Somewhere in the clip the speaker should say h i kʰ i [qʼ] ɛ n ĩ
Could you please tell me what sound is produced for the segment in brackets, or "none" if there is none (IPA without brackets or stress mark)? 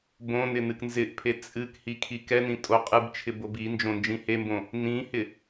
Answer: k